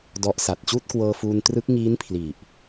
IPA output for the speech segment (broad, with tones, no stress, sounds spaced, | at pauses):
d ɔ˦˥ ʔ s a˨˩ t̚ t͡ɕ uː˥˩ t̚ k w ɤː˧ f uː˧ n t r ɯ˦˥ k̚ ŋ iː˦˥ n pʰ l i˨˩ ʔ